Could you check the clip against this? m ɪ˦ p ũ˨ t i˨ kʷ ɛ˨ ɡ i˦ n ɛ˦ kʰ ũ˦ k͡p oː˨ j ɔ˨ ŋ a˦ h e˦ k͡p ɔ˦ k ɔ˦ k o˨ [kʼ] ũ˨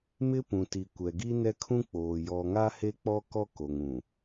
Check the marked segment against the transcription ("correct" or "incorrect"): incorrect